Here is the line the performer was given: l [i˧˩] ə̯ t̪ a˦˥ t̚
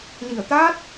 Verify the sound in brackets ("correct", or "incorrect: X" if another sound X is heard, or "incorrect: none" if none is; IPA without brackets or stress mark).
correct